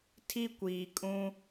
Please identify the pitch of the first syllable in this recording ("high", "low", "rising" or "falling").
high